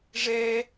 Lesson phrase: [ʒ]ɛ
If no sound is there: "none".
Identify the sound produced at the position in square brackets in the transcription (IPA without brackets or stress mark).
ʐ